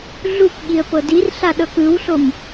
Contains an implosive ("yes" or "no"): yes